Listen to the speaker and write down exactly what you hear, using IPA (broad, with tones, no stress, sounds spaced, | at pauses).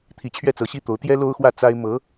t̪ʰ i˧˥ t͡ɕʰ ɥ ɛ˥˩ t͡s ɤ˧˥ ɕ i˥ t̪ o˧˥ ʊ̯ t̪ j ɛ˥ l o˥ ʊ̯ x w ä˥˩ t͡s a˥ ɪ̯ m ɤ˧˥